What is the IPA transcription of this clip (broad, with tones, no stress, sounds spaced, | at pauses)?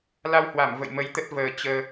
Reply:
l a˧ w h w a˧˩ m v ə̰˧˨ j m ə˨˦ j t̪ ə˦˥ t̚ v əː˨˩ t͡ɕ əː˧